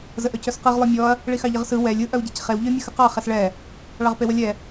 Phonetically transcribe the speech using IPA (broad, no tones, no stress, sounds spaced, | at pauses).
z ə ʔ œ c œ s q ɯ ʁ lˠ œ mʲ ɔ ɐ̯ | ɭ i x ɑ ʎ ə ʁ s ɯ w ɛ lʲ ɯ ʔ œ w ɟ e c χ e w ʎ œ mʲ ə x ə q ɑ χ ɛ s ɭ ɛ | ɭ ɑ ʁ p e w ə lʲ ɛ